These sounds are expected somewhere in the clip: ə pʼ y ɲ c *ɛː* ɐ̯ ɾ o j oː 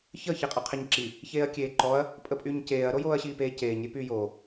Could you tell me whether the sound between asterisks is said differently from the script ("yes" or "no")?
yes